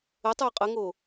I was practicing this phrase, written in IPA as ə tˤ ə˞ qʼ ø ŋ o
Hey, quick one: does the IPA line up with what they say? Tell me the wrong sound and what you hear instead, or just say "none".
ø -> ə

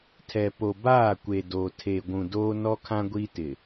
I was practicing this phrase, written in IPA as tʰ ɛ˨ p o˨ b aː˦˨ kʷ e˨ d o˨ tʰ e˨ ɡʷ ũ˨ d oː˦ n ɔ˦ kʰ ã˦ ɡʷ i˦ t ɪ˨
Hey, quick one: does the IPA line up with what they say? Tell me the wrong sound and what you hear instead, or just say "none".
none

